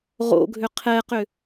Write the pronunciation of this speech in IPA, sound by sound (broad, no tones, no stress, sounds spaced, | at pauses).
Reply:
ʁ o̰ ɡʱ ʏ qʰ ɛ q ʏ